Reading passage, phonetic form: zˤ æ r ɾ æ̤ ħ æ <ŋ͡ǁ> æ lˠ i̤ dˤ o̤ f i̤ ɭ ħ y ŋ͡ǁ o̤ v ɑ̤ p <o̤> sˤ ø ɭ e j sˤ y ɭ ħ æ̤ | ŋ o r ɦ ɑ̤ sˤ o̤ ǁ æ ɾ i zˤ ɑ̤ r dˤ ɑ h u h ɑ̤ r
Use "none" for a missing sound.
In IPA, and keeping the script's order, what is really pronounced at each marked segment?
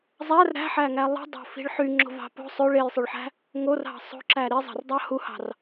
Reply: ŋ, o̤

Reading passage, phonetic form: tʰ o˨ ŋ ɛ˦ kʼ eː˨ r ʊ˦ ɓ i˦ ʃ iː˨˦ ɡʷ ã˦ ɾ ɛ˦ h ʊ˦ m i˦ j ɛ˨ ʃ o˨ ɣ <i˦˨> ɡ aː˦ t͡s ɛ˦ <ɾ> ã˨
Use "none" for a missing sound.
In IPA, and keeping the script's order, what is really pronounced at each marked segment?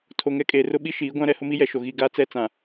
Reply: i˦˨, t͡s

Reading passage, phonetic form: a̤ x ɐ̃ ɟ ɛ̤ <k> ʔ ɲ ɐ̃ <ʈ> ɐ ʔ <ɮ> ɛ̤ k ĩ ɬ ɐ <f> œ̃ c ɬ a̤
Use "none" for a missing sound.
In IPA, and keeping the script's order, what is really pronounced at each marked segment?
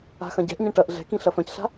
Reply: none, ʈ, ɮ, f

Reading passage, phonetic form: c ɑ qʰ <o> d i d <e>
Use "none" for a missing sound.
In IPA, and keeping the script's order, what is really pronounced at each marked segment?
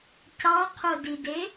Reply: o, e

